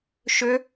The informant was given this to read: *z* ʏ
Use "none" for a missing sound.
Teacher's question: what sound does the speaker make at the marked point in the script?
ʃ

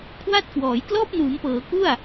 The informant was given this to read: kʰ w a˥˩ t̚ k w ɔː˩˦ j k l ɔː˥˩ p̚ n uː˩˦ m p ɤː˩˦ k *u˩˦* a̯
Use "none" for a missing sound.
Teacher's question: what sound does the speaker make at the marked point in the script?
u˥˩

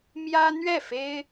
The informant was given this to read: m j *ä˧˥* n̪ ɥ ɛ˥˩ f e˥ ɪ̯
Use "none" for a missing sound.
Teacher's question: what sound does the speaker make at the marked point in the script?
ä˥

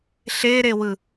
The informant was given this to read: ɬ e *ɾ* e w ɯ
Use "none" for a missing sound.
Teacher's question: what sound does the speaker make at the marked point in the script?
ɾ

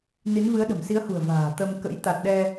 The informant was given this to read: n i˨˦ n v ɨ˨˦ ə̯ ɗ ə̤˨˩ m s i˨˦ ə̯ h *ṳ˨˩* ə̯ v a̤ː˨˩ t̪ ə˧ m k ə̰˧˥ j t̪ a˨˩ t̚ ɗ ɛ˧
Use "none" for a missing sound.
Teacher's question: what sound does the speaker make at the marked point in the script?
ṳ˨˩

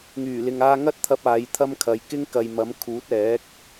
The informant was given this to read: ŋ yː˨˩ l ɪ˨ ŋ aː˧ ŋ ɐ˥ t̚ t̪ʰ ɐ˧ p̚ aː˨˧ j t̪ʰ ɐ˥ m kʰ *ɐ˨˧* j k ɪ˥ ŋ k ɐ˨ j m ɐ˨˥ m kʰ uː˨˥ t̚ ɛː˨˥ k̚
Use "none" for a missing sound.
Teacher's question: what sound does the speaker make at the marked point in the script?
ɐ˨˧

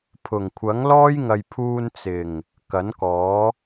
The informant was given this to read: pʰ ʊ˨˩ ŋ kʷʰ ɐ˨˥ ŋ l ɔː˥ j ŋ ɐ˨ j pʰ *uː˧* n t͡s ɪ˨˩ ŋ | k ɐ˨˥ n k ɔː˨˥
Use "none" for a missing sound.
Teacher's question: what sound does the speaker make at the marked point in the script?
uː˧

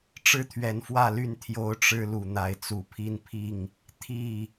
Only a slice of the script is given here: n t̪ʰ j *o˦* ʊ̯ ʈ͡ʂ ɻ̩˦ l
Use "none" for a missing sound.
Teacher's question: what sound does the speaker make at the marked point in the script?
o˦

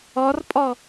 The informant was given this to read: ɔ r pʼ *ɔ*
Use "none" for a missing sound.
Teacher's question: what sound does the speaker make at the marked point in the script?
ɔ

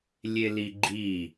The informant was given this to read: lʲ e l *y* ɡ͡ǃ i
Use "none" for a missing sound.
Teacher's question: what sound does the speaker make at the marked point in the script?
i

